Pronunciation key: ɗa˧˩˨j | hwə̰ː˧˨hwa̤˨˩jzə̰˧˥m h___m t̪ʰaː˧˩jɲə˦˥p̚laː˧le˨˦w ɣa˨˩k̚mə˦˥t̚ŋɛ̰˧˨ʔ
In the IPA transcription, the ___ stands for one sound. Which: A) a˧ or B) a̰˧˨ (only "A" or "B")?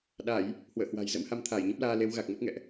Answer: A